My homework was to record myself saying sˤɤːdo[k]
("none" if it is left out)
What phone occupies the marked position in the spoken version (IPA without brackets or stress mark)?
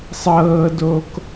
k